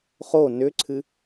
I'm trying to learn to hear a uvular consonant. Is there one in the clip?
yes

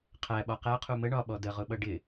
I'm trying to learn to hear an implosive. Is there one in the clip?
yes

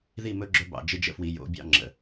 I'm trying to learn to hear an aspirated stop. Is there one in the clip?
no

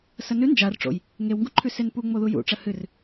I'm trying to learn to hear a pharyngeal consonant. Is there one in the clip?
no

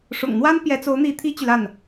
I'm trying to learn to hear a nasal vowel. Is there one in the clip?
no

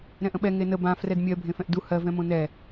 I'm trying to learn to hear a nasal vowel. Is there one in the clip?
yes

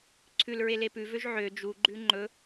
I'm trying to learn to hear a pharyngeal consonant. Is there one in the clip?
yes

